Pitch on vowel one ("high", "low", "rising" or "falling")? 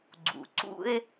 low